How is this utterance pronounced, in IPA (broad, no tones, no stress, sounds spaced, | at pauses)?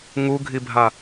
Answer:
ŋ u ɡʱ i bʱ a